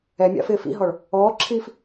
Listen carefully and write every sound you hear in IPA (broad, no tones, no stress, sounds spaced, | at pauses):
ɛ mʲ a̰ f ɪː f ḭ ɦ ɔ ɭ | ɔː ǁʰ iː f